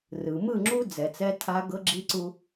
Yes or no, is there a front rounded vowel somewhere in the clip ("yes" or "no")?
no